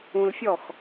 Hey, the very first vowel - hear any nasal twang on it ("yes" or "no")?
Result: yes